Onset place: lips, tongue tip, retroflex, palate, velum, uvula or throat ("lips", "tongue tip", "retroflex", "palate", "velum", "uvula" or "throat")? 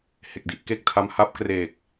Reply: throat